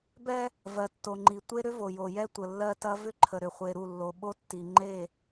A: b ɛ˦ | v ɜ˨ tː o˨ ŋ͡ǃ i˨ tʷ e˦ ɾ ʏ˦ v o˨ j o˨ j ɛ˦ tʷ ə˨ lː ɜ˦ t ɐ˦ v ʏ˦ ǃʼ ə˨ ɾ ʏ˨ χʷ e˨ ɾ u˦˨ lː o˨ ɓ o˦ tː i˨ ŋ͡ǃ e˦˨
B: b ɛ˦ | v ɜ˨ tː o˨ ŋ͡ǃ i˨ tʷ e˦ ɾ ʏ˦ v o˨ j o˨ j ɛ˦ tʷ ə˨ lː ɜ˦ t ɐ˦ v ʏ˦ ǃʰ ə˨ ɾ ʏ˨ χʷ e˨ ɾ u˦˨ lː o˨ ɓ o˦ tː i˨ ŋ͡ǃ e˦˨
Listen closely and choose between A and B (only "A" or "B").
B